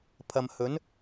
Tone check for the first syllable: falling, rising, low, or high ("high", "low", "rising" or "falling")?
low